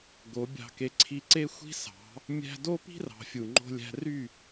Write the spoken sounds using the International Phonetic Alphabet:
ɡo˨˦bʲɑ̤˧ke˧ ǀʰi˧ǀe˦xʷi̤˦sɑ̤˨˦ | mʲæ̤˧do˦pi̤˦rɑ̤˨ fʲu˨ŋ͡ǃo̤˧lʲæ̤˧ry˦˨

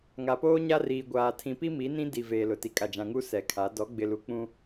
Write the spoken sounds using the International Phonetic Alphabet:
ŋa˨poː˦ ɲa˦riː˨ ɡʷaː˨ tʰĩ˨pi˦mi˨˦nĩ˦ di˨veː˨ lʊ˨ti˨kʼa˨d͡ʒã˨ ŋu˦ sɛ˨kʰa˨˦ dɔ˨˦ɡ͡bɪ˨lu˨ k͡pũ˦

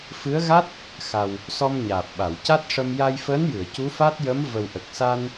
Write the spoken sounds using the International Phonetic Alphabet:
fɨ˧˥ə̯ɣa˦˥t̚ | xa˨˩w | sɔ˧mɲaː˨˩p̚ɓa˨˩˨w ca˦˥t̚ʂə˧m ja˧jfəː˧˥njɨ˨˩˨ə̯ cu˧˥fa˦˥t̚ jə˧˥mvə˨˩wʔə˨˩k̚ sa˧n

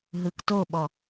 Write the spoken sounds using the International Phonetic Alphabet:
ɦɯktoɓɔ

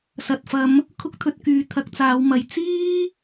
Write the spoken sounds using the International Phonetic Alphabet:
sɐ˨t̚fɐ˨˧m | kʰʊ˥k̚t̪ʰɵ˧t̚kyː˨˧ t̪ʰɐ˨˥k̚t͡saː˨˧w mɐ˨j t͡siː˥

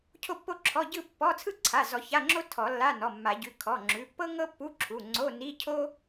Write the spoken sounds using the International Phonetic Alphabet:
cʰo˥˧pːo˥˧ǁʰɔ˧˥˧ ɟɯ˥˧pːɔ˧˥˧ t͡sʰɯ˥˧ǀʰa˩˧˩zɔ˨˩˦ ça˧˥˧ŋ͡ǁo˥ tʰɔ˨˩˦lːa˧˥˧nɔ˩˧˩mːa˨˩˦ ɟʉ˩˧˩ kʰɔ˩˧˩ ŋ͡ǁʉ˩˧˩pːɤ˥ ŋɤ˥pːu˧˥˧ ǁʰu˩˧˩ŋ͡ǀo˧˥˧ ni˧˥˧cʰo˥

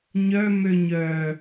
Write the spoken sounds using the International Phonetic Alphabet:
ɲœ møɲœ

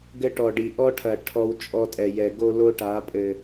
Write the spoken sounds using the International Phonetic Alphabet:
ɡɘ˦ʈɔ˨ɖi˨ ʔɔ˦ʈʰɐ˨ ʈʰɔ˦wt͡ʃʼɔ˦tʼɛ˨jɛ˨ ɡo˦lo˦ʈa˨˦ pʼɘ˨

